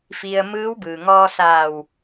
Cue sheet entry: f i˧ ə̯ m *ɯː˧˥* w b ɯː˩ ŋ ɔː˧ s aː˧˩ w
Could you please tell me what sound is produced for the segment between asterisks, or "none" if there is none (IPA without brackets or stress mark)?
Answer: ɯː˧˥